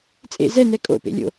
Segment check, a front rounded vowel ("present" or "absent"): absent